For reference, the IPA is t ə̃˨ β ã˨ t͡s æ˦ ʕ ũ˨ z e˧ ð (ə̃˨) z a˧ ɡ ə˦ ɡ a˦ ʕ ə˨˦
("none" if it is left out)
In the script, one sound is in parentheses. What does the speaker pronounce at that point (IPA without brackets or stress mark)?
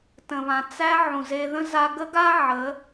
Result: ə̃˦